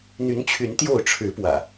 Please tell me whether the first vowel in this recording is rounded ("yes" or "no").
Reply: yes